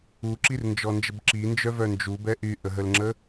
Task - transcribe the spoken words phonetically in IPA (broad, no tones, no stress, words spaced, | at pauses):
uǁirnd͡ʒɔnd͡ʒəb ǁind͡ʒœvœ nd͡ʒubɛ ʔyʔəɦəlŋ͡ǁə